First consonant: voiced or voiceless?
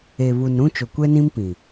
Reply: voiced